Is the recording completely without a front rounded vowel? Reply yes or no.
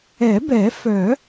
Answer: no